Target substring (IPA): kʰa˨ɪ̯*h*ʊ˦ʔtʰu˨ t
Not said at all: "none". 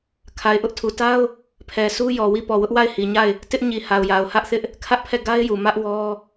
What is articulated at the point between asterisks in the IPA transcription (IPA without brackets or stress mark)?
ʔ